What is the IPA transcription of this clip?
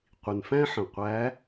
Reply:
qʷ i˩ n f æ̃˥ ħ ə̃˩ qʷ æ˧˥

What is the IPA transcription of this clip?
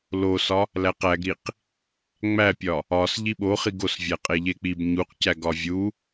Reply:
l o s ɒ | l æ q æ ɡ ɾ i q | ŋ͡m æ pʲ ɒ | ɒ s ʎ i ɓ o χ i ɡ o s vʲ æ qʼ e ʎ e k͡p i b ɲ u q c æ ɡ ɒ vʲ u

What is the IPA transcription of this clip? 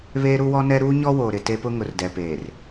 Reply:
β eː˦ ɾ u˦ w ɔ˦ n ɛ˦ ɾ uː˦ ɲ ɔ˦ w oː˨ ɾ ɪ˨ t e˦ p ʊ˦ ŋ ʊ˨ r d ɛ˨ p eː˨ r

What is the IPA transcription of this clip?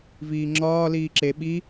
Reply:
v iː ŋ͡ǁ ɒː l iː ǁ e ɓ i

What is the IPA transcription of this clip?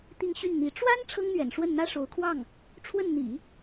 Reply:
t̪ i˥˧ ŋ ɕ y˥˩ n n̪ i˧˥ ʈ͡ʂ w a˥ n ʈ͡ʂʰ ɤ˥ ŋ n̪ ɥ ɛ̰˨˩ n ʂ w ə˥˩ n n̪ ä˥ ʂ o˧˥ ʊ̯ kʰ w ɑ˥˩ ŋ | ʈ͡ʂʰ w ə˥˩ n n̪ ḭ˨˩˦

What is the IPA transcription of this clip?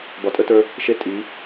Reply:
b ɒ˨ tʼ ə˦ t ə˞˦ | ʃ e˦˨ tʼ i˨˦

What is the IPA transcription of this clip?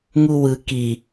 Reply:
ŋ u w ɯ k i

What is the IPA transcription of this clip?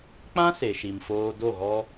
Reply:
k͡p ã˦ s e˨ ʃ i˨ m f oː˧ d o˦˨ ɣ ɔ˦

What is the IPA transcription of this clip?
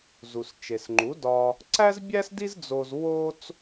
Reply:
z u˩ s t͡ʃ e˩ s ŋ͡ǃ u˩˥ d ɒ˧ | ǀ æ˥ z bʲ æ˥ s d i˥ z d͡z o˧ z w o˥ t͡s

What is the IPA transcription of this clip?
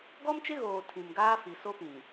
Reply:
ɡ ɔ˦ m t͡ʃ ɪ˦ ɣ oː˨ tʰ ĩ˨ m ɡ aː˦ f i˨ s o˦ p ĩ˨

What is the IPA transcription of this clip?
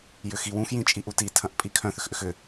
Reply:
j ʏ x i w ũ x j ĩ t͡ʃʼ i ʔ u t i tʰ ɐ̃ ʔ pʼ i kʰ œ̃ θ ʏ x ʔ ʏ x ʏ

